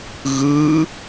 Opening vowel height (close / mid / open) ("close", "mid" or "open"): close